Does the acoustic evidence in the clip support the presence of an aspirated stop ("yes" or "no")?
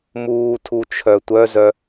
yes